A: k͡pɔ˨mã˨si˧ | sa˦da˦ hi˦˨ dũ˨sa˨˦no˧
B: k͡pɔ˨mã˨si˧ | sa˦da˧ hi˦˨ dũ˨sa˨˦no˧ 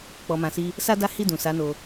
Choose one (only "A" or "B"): A